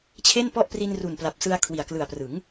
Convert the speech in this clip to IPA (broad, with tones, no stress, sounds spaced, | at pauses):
t͡ɕʰ e˥˩ n p ɔ˥˩ ʔ p r i˧ n r u˨˩ n p l a˨˩ p̚ s ɯ˧ a̯ kʰ w i˨˩ a̯ k l ɯ˨˩ a̯ p r ɯ˩˦ ŋ